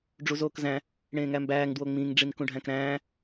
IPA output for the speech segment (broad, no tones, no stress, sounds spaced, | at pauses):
ɖ͡ʐ u z oː k z æ̃ | ɽ ẽː ŋ æ m b æː ŋ d w o ŋ͡m ĩ ŋ ɖ͡ʐ i n k ũ ɖʱ æ̃ k ɾ æ̃ː